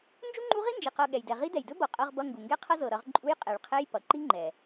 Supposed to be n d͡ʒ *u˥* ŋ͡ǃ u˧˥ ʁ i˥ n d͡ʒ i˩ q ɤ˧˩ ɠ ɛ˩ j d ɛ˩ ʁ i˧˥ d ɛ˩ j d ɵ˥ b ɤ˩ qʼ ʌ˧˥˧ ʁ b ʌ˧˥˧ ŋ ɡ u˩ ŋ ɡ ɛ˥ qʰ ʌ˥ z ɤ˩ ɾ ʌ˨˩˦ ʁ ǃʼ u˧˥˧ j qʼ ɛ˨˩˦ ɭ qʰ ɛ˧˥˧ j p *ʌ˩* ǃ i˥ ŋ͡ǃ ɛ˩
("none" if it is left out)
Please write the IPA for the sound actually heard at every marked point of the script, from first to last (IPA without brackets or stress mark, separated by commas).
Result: u˥, ʌ˩